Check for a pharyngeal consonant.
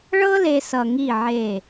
present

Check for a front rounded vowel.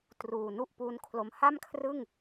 absent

